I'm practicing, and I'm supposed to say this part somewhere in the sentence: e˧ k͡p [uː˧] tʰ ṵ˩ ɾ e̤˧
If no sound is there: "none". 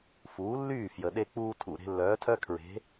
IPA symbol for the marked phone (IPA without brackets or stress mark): uː˧